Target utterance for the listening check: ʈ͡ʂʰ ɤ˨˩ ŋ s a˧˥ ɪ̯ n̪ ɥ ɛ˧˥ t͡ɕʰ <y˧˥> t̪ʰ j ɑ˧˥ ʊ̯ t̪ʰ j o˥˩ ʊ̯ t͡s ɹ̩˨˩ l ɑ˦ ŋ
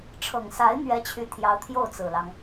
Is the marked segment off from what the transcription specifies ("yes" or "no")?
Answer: no